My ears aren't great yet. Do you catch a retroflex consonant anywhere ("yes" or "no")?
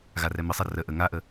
no